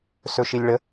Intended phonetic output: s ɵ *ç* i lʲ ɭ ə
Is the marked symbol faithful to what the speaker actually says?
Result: no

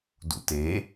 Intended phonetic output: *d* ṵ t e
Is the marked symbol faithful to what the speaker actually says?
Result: yes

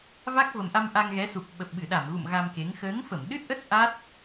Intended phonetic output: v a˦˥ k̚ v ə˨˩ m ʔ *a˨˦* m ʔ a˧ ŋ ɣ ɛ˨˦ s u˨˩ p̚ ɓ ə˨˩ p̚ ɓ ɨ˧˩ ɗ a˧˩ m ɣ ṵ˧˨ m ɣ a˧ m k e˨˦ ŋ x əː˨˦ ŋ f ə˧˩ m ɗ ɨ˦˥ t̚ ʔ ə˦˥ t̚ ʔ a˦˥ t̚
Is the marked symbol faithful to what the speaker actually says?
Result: no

